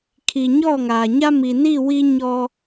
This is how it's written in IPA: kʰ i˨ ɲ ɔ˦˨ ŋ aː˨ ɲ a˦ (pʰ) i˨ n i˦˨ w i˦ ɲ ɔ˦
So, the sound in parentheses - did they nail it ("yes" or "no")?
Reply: no